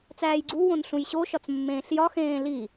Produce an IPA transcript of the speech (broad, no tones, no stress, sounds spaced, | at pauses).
t͡s æː j ɡ͡ǀ u w õ n ɬ ũ j ɕ o ʃ ɒ t͡s mː ẽː ɬ j ɒ x ẽː l i